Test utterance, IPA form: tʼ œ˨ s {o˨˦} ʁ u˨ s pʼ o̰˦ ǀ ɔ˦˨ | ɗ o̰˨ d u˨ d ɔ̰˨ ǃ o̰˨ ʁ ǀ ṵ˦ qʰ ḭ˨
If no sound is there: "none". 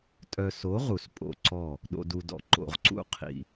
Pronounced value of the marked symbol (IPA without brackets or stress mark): o˨˦